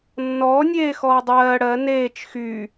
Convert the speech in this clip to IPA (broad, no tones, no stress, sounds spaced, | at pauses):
nː ɔː nʲ eː x ɔː dˤ ɜː ɽ ɜ n eː t͡ʃ x y